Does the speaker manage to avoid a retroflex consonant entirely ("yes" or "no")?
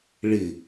no